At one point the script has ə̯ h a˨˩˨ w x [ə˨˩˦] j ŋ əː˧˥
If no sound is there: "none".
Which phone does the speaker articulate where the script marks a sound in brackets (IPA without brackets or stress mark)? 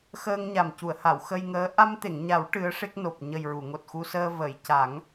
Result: ə˧